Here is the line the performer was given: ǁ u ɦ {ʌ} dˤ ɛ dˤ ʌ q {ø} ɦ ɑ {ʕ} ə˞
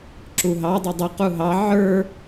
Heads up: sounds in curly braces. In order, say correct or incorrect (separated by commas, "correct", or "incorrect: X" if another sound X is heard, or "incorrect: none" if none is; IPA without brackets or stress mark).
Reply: incorrect: ɑ, incorrect: u, correct